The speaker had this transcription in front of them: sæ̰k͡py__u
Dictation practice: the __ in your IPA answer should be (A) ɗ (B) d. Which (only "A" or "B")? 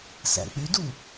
B